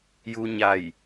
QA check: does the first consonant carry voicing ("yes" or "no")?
yes